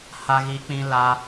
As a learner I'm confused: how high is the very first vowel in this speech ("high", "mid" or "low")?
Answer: low